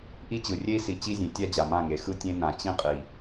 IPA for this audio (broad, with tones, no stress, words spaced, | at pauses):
ʔi˦t͡ɕɯ˨ rʲe˦i̯si˨ t͡ɕi˦zʲẽ˨˦tʲa˦d͡ʑa˨ mã˦˨ŋe˨˦ xɯ˦tʲẽ˦nã˨ t͡ɕĩ˦ qʼi˨